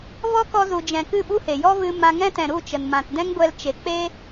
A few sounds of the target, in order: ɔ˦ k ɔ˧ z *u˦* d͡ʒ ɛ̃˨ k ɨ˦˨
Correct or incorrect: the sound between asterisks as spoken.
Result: incorrect: u˨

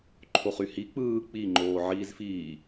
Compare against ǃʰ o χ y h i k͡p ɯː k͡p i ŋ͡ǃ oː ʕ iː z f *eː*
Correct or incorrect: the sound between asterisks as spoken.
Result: incorrect: iː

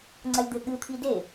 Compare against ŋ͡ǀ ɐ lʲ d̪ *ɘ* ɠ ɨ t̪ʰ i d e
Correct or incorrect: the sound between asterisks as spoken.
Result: correct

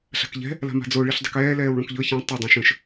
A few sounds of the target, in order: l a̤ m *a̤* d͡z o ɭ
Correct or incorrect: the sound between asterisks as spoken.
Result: correct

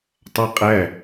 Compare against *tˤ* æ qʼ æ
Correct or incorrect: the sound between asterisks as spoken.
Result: correct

